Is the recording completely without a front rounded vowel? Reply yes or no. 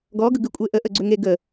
no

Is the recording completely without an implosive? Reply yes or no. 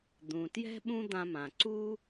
no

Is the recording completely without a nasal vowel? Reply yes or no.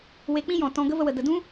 no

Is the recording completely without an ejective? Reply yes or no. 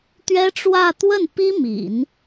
yes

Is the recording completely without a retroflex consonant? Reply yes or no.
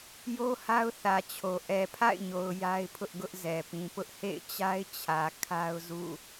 yes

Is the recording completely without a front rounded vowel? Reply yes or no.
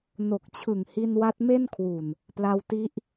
yes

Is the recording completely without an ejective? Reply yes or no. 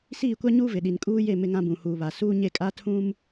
no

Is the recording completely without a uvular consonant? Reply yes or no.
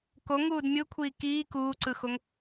yes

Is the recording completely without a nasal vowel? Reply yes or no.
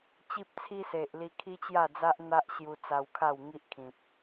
no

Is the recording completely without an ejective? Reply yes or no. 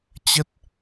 yes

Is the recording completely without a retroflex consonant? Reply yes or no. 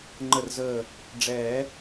no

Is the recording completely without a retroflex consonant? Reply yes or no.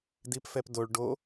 no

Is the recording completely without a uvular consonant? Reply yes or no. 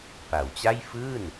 yes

